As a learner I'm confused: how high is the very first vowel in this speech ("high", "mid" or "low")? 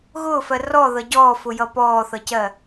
high